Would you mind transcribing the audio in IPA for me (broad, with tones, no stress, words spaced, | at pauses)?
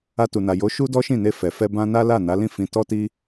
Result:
a˧tu˨na˨ jo˨˦ ʃu˦dɔ˦ʃĩ˦˨ ne˧fɛ˨fɛ˧ bã˦na˦ la˦˨na˨˦lĩ˦˨ fĩ˧ tɔ˦ti˦